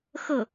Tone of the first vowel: falling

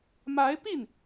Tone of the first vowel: rising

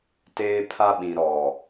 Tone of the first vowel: high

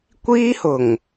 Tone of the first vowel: high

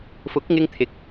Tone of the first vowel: rising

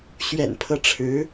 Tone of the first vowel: low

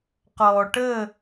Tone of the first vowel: low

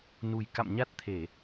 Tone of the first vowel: low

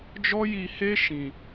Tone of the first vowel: high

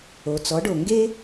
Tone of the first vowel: low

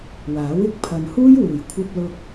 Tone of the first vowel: rising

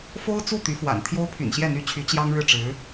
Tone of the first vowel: high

